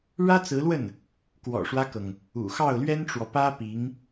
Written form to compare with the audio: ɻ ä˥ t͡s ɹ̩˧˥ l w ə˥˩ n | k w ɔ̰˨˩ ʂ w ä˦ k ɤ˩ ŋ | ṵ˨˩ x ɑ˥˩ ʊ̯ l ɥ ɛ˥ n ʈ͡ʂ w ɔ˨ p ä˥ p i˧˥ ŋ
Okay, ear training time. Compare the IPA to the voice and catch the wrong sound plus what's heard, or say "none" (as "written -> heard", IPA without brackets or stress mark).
none